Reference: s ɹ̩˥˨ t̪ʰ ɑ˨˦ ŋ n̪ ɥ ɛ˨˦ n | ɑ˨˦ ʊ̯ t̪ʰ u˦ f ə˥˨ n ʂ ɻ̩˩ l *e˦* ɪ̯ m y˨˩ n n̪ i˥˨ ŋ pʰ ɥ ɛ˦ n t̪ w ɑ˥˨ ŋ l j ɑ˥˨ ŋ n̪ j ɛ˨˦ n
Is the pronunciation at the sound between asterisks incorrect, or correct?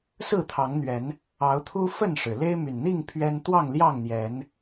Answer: correct